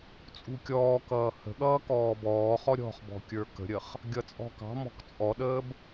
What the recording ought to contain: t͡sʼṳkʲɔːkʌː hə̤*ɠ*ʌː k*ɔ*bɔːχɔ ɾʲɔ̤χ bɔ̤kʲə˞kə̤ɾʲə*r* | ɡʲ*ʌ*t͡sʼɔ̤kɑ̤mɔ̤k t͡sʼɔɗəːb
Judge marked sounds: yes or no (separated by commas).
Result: yes, no, no, yes